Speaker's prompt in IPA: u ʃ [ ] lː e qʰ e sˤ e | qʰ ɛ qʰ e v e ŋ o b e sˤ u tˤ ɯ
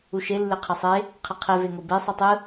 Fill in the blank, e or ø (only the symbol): e